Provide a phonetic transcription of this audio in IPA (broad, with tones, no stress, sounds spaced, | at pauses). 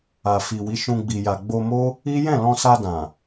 a˨ f i˨ w i˨˦ ʃ ũ˧ ɡ͡b i˨ j a˨ ɡ͡b o˧ m o˦ | i˦ j ɛ̃˦˨ l ɔ̃˧ s a˧ d ã˨